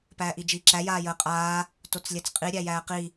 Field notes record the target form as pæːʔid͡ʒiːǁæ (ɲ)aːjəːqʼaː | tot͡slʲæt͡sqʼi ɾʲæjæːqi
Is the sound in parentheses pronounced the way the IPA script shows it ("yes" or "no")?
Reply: no